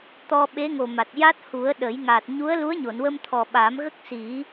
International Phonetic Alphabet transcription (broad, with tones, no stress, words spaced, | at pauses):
t̪ɔ˧ ɓe˧˥ŋo˨˩ma˨˩t̚ ja˦˥t̚hu˨˩˦ə̯ ɗə˨˩˦j ŋa˨˩t̚ ɲu˧˥ə̯lu˧˥ə̯ɲo˨˩˨n wə˧mt̪ʰɔ˨˩ɓa˨˩˦mɣə˦˥k̚ si˨˩˦